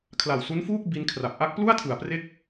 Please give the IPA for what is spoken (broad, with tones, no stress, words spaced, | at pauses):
kʰla˨˩wsu˦˥nfuː˥˩k̚ bi˦˥nkʰra˨˩p̚ ʔa˦˥k̚plu˥˩a̯tʰɯ˩˦a̯pre˦˥k̚